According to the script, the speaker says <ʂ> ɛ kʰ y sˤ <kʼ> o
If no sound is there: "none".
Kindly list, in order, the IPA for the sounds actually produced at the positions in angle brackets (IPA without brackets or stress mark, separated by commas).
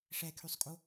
ʂ, kʼ